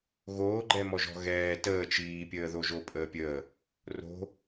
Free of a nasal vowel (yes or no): yes